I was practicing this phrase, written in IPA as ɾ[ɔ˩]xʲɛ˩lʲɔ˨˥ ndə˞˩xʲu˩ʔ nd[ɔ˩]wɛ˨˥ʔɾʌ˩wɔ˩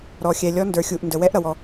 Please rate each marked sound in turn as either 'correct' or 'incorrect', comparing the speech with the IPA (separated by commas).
correct, incorrect